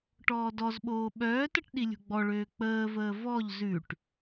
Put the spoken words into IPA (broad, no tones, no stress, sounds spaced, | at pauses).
ʈ ɔː d ɔ z ɓ oː ɓ œː t ə ʈ ɗ i lʲ ṳ ɡ͡b ɔ ɭ øː k͡p əː v əː v ɔ ʎ z ʉ ʈ